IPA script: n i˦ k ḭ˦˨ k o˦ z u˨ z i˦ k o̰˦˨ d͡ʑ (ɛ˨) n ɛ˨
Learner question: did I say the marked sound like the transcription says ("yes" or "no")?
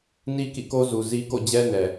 no